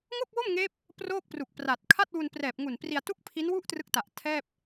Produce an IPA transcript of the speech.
ŋ o˥˩ k̚ w o˥˩ m ŋ eː˦˥ p̚ | p r oː˥˩ k̚ p r u˨˩ k̚ p r a˨˩ t̚ kʰ a˥˩ t̚ w u˧ n p r ɛː˨˩ p̚ ŋ u˨˩ n p r i˧ a̯ t u˥˩ k̚ pʰ i˦˥ n w u˥˩ ʔ t r ɯ˦˥ k̚ t a˨˩ ʔ tʰ ɛː˥˩ p̚

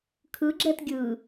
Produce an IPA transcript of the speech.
kʰ ɯ ɡ͡ǁ ɛ t ɡʲ ɯ

